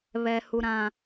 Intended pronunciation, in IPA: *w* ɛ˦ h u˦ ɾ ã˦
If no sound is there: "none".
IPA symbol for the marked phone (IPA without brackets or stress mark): β